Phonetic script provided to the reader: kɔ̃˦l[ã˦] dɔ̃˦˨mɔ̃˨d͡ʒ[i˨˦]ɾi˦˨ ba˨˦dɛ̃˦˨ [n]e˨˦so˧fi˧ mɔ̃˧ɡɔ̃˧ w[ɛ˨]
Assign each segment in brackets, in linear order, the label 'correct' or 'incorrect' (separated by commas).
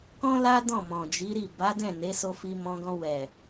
incorrect, correct, correct, correct